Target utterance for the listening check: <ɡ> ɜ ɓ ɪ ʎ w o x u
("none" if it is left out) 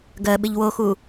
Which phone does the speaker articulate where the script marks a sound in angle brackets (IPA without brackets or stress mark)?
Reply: ɡ